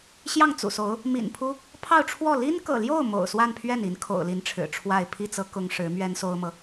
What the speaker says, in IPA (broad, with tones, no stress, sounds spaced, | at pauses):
ɕ j ɑ˥˩ ŋ t͡s ṵ˨˩ s o˧˥ ʊ̯ | m ḭ˨˩ n pʰ u˥ | pʰ ɑ˥˧ ʊ̯ ʈ͡ʂʰ w ɔ˥˩ l i˥ n k ɤ̰˨˩ l j o˥˩ ʊ̯ m o̰˨˩ ʊ̯ s w a˥˧ n pʰ ɥ ɛ˥˩ n i˧˥ n kʰ o̰˨˩ ʊ̯ l i˧˥ n ʈ͡ʂʰ ɻ̩˨˩ ʈ͡ʂʰ w a˥˧ ɪ̯ pʰ i˥˩ t͡s ɤ˥ k ʊ˥ ŋ ʂ ɻ̩˧˥ m ɥ ɛ˥ n s o˥ ʊ̯ m ɤ˨